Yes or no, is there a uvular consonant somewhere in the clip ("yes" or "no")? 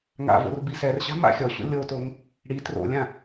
no